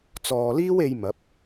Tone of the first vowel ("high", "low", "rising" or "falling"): low